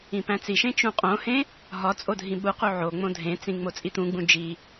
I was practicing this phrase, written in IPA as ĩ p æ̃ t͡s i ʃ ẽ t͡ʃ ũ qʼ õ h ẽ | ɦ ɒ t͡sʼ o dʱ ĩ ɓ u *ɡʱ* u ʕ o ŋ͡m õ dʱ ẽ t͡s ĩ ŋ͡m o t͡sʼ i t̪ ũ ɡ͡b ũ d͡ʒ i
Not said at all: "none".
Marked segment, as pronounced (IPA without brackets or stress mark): q